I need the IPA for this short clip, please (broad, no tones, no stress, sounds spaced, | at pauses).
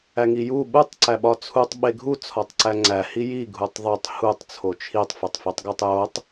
æ ŋ i j u ɓ u tˤ ǀ æ ɓ ɒ t͡sʰ u tˤ ɓ e ɡʱ u t͡sʰ ɒ tˤ ǀ æ ŋ͡ǀ æ h i j i ɡʱ u tˤ ðˤ o tˤ h u tˤ t͡sʰ o t͡ʃʰ i tˤ f e tˤ f i tˤ ɡ o tˤ j o tˤ